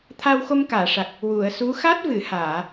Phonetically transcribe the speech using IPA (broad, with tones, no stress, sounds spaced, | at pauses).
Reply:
t̪ʰ aː˧ w x o˧ m k aː˨˩˨ ʂ a˨˩ k̚ | w u˨˩˨ ə̯ s u˧˥ x a˦˥ t̚ v ɨ˨˩˨ h aː˨˩˨